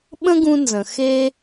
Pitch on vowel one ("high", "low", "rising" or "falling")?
high